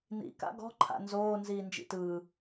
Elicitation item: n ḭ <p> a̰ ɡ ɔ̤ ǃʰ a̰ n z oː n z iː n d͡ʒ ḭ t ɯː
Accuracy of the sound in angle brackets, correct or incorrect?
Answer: incorrect